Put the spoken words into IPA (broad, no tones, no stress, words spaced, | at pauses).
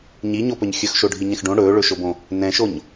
ɲiɲopɵɲ xʲɵxʃoɖʱiɲɛ̃x ɖõ ɽɵːɭɵʃobõ | nɛ̃ʃoɲ